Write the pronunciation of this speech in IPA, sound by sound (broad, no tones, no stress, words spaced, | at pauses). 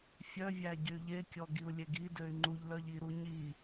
fʲœvʲæ ɟyʎekʲɔ ɡiu̯lʲeɡidøy̯ ŋ͡ǃuʎlœʎ iɾu ɲi